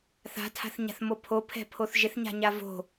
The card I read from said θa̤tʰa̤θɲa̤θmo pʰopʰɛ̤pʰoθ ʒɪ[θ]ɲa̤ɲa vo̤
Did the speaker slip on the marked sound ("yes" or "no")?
no